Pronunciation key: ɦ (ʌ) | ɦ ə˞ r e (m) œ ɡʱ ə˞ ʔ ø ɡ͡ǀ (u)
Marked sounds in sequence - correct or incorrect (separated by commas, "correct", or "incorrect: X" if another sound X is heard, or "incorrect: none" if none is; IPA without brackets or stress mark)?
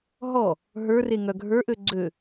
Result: incorrect: ɔ, incorrect: ŋ, incorrect: ø